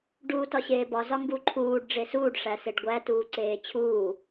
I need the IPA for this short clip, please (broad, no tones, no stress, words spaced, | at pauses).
ɖuːtɒɕeːbɒ zɒŋɡuǃʰuːɖ ɖ͡ʐesuːɖ ʂæseɖɡʷæ tuːǀeːt͡ɕʰuː